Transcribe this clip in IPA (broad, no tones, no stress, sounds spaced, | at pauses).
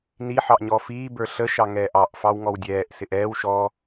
n i ħ ɑ ʔ ɲ ɔ f iː b ə˞ ɬ ə ʃ ɑ ŋ ɛː ʔ ɑ ʔ f ɑ w ŋ ɔ w dʲ ɛː ʔ s ɪ ʔ ɛː w ʃ ɔ